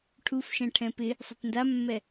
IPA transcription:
ʈʰufʃɛ̃ ʈʰɛ̃pɪ | sˤətndamːɛ

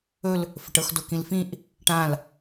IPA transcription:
ɵl | fəʈɤx dokĩlfĩʔ | ʈãl

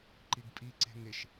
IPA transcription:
ǃiɡpʼi ǀe̤ŋeʃ

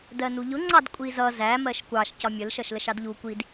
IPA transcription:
dɜnuʎʊ ŋ͡ǀɑdkʷʼizʌ zæ mɜʃkʷɑʃ cɒmʲəl ʃʌʃləʃɑdʎu kʷid

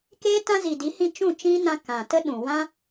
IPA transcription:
keː˦tã˦ zi˨di˨˦hĩ˧ t͡ʃũ˦˨t͡ʃĩ˦ nã˧ kã˨tə˦ ɗũ˨wã˦

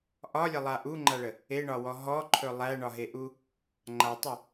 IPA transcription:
ʔɒlʲəlˠa ʔuŋ͡ǃaɭə | eɳɒwɔ ɦɔǃʰɵ lˠæɳɒɦeʔu | ŋ͡ǃatˤɨ

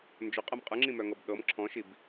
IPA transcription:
nd͡ʒʊqʼɛm qʼɯŋ͡ǁĩmœŋɤb ɗɤm ǁʰɔ̃ʃib

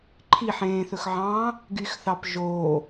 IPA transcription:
ǃʰiħẽːθɵxʕɑ̃ː | ɡyxθɑp ʒoː

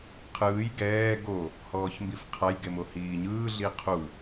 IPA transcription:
qʰɯːj ɡɛː ɡo | hɔːçmbifqʰaj ɡemohiːɲɯː ɮiqʰu

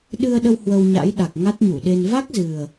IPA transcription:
ɗɨ˧ə̯ɗə˧w hwə˧wɲa̰˧˥jɗa˨˩k̚ ŋa˦˥t̚ɲu˧˩ɗe˧n va˦˥k̚zɨ˨˩ə̯

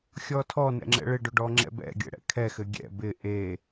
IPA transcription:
xʲɔtʰɔ nɛ̰ŋ͡ǁɛ̰ɭɪɖ oɖɔŋ͡ǁɛ̰bɛ̰ ɡʲɛ̰ɽɛ̰kʰɛ xɘɡʲɛ̰ bɪ ʔe

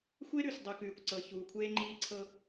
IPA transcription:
xʷe˦ɾʉ˨s dˤʉ˨kʉː˨kʷǀɤ˨ çuː˨kʷʰeː˦ ŋ͡ǃiː˦ǀʰɤ˦

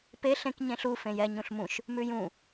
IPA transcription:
pe ɬẽk ɲẽɬu fẽjɛ ɲũɬmũʃ | mʉjũ

